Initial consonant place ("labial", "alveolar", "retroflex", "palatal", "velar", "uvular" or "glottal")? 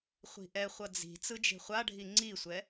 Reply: uvular